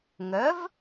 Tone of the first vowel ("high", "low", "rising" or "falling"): rising